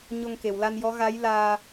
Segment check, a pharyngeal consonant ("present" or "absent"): absent